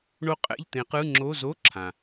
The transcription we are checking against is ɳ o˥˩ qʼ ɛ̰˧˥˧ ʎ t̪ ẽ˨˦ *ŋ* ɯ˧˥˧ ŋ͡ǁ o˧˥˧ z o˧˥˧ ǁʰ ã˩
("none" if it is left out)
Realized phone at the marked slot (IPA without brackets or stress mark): q